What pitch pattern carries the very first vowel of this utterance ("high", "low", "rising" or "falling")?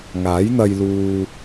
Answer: rising